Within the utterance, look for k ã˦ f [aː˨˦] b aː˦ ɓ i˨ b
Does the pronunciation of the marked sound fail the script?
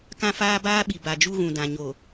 yes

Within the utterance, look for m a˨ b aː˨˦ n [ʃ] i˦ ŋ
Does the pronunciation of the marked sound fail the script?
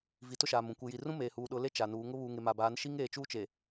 no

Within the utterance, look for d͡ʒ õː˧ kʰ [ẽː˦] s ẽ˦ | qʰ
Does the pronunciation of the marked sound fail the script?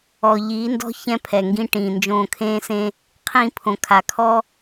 no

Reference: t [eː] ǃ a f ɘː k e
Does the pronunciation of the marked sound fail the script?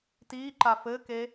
yes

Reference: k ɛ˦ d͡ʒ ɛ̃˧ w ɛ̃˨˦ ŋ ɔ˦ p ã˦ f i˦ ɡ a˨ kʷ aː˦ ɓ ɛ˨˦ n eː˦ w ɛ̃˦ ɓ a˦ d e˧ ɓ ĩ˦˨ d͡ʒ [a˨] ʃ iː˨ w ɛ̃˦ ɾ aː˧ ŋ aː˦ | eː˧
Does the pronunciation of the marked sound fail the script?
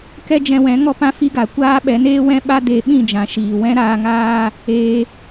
yes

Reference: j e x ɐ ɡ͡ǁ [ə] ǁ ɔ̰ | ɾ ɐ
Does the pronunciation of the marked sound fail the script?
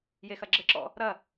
no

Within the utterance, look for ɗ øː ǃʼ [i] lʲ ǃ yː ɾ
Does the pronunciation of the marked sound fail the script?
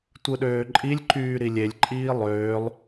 no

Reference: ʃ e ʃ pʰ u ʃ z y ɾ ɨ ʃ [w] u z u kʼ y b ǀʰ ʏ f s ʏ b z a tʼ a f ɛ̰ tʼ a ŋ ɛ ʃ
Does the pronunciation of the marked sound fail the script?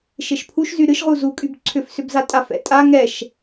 yes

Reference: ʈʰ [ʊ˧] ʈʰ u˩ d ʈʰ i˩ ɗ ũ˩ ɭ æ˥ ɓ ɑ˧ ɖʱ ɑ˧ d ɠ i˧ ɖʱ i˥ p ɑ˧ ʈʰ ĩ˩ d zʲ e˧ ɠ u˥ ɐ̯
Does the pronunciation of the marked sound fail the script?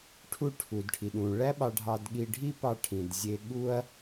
yes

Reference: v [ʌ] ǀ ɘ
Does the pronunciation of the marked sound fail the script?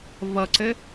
no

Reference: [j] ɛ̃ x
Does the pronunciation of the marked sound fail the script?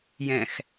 no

